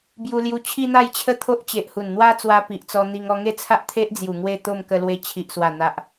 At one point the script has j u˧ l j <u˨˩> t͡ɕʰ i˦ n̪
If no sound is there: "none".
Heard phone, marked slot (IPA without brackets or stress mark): u˧